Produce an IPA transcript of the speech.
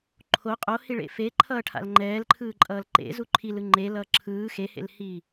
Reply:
ǃʰ o qʼ o h i ɭ ḛ f e ǃʰ ʌː ʈʰ a̰ l ŋ͡ǃ ɛː l ǃʰ ɯː ǃʼ ʌː l ǃ ḛ z u ǃʰ i l ɯ ŋ͡ǃ e l ʌː ǁʰ ɯː x e h ḛ l h iː

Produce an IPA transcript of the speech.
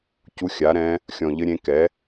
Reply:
c u˧˥ xʲ a˩˥ ɾ ɛ̃˧˥ | xʲ ɔ̃˨˩ ʎ ɘ˧˥ ɾʲ ẽ˧˥ k ɛ˩˥

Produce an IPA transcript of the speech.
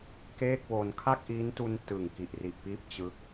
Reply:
k eː˥˩ k̚ w o˧ n kʰ a˥˩ k̚ ʔ iː˦˥ n t u˧ n t ɯ˨˩ ŋ k i˨˩ ʔ r i˨˩ ʔ p iː˦˥ p̚ t͡ɕ ɯ˦˥ k̚

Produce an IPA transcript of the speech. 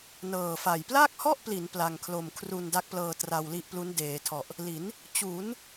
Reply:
n ɤː˨˩ f a˨˩ j p l aː˥˩ k̚ h ɔ˥˩ ʔ p l i˩˦ n p l a˧ ŋ kʰ l o˧ m kʰ r u˧ n d a˦˥ k̚ p l ɤː˧ t r a˧ w l i˦˥ ʔ p l u˦˥ n d eː˩˦ tʰ ɔ˨˩ ʔ | l i˩˦ n | t͡ɕ u˩˦ n

